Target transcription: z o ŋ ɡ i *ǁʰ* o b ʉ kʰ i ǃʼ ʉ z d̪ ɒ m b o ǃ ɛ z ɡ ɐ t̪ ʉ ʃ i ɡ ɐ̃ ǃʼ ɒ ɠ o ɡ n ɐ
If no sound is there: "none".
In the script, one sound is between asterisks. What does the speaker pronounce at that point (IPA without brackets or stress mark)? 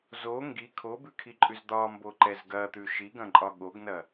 kʰ